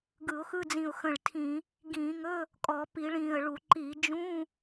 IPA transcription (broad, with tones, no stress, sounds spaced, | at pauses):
ɡ ɯ˧˩˧ ʊ̯ x ɯ˧˥˧ d͡z ĩ˧˩ ʊ̯ x ə̃˧˩ ɭ tʰ ĩ˧˩˧ | ɡ ĩː˧˩˧ ŋ ɵ˧˥˧ | kʼ ɔ˧˩˧ p i˧˩˧ ɭ ĩː˧˩ ə̯ ɭ u˧˩˧ ǃ i˧˩˧ d͡ʒ ũː˧˥˧